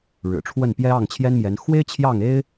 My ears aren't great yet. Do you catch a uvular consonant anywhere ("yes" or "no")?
no